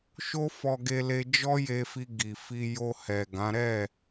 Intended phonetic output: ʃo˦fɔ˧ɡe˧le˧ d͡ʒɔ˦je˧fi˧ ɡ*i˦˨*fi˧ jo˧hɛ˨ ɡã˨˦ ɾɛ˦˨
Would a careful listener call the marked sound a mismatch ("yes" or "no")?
yes